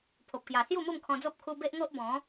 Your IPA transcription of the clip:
pʰo˨p̚kja˨˩ sju˥˧mu˥˧mkʰɔ̃˧d͡zo˦p̚ kʰu˧be˦ʔŋo˦ʔ bɔ̃˨˦

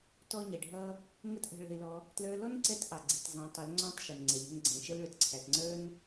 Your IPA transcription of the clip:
tɔ˦ɲɛ˨ɖʱʌ˦ | ŋə˦tʔə̤˧ɭə̤˧ɪ̯lɔ˧ | tlə˞˧lɔ˦nǀɛ˧t ʔɑ˨ɡ͡ǀi˨t zˤɛ̃˨˦tˤʊ˨˦l ŋ͡ǀɔ̃˦tˤʃə˨n ŋ͡ǀɛ˨ʎə̤˧n ɡ͡ǀɛ̃˨ʃə˦lɭʊ˨t ǀʰæ˨tŋ͡ǀə˞˦n

